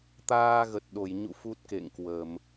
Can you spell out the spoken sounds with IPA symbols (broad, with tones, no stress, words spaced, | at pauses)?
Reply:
t̪aː˧ɣə˨˩t̚ɗo˧˩jɲṵ˧˨ fu˦˥t̚kḛ˧˨ŋkwə˧˩˨m